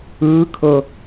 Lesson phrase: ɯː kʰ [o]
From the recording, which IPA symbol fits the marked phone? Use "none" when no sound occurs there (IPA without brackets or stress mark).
ɤ